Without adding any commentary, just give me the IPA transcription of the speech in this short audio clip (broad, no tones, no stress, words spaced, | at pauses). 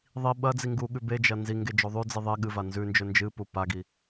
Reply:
ðˤi ɓɐd͡zi ŋɡuɠʉ bed͡ʒɐ nziŋɡe d͡ʒoðˤʉd͡zi ðˤe ɠɨva nzʉnd͡ʒɵ nd͡ʒɨpu paɡi